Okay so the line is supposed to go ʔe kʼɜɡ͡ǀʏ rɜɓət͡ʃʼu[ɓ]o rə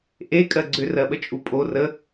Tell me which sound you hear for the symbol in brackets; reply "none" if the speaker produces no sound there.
pʼ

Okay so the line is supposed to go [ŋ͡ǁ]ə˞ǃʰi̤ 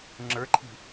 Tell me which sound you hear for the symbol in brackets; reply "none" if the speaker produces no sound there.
ŋ͡ǁ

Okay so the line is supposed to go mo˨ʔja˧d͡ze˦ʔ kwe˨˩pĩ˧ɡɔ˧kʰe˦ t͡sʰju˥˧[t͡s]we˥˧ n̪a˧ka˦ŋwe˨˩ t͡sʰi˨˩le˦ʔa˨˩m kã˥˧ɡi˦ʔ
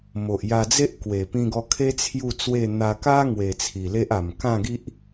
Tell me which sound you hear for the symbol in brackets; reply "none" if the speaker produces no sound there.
t͡s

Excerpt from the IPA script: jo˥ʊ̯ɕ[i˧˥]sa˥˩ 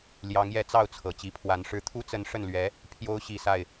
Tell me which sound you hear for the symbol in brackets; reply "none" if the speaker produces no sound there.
i˨˩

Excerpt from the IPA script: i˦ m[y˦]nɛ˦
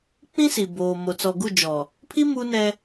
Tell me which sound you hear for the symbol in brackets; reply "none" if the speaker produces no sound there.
u˦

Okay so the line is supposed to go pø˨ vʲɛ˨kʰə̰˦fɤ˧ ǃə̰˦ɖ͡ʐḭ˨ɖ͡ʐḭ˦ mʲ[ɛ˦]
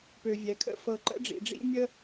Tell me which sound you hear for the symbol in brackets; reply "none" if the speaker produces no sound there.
ə˦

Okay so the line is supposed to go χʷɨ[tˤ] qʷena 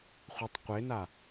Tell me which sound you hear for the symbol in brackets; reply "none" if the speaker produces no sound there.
tˤ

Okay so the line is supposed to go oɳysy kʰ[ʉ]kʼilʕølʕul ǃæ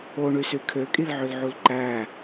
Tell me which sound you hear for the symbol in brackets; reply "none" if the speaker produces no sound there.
ø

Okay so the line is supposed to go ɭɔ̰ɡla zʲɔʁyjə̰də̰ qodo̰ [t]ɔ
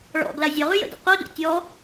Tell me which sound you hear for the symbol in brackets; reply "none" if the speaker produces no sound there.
tʲ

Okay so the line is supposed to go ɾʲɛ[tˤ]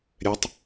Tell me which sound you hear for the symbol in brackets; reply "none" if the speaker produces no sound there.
tˤ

